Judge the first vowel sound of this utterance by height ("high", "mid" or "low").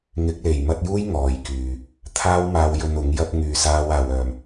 high